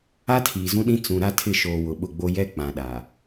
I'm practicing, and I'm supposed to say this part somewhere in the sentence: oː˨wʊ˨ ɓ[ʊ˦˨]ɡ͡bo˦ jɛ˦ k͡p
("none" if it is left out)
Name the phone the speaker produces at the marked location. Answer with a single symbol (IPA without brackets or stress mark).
ʊ˦˨